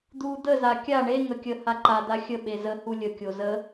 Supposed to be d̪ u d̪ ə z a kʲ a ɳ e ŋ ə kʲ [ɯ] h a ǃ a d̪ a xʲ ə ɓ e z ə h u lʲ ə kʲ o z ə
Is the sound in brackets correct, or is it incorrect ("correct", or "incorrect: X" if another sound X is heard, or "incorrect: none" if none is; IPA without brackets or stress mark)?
incorrect: ə